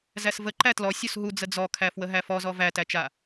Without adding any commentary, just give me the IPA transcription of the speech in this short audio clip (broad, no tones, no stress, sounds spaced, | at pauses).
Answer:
z æ s v ə ǃ æ t l ɔ sʲ u s ɦ u d͡z ə d͡z ɔ kʰ æ f w ə ɦ æ f ɔ z ɔ v æ t æ t͡ʃ a